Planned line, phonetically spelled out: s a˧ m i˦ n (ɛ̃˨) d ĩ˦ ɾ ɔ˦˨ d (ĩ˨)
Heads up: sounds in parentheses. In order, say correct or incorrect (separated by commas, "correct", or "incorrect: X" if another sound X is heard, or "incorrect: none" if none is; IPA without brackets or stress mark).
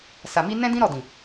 incorrect: ɛ̃˦, correct